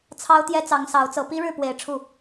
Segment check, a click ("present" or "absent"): absent